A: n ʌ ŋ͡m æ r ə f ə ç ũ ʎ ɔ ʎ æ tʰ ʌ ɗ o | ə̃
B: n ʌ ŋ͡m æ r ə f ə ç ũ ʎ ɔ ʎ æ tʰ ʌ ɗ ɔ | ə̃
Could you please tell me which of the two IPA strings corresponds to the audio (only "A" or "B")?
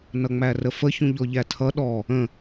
B